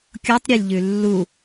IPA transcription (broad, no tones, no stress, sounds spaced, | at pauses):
kʲ o tˤ ɾʲ e lʲ ʎ ʉ lː u